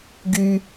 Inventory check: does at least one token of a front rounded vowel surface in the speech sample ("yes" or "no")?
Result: yes